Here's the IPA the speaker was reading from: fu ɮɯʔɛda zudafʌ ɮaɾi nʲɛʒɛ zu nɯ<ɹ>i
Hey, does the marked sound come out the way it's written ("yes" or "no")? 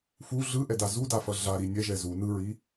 yes